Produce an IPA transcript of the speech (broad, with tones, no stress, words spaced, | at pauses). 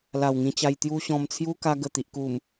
la˨˩wŋĩ˧t͡ɕa˧j t̪ju˦ɕɔ̃˧m t͡sʰju˦ka˧ ɡə˨˩t̪i˨ʔku˨˩m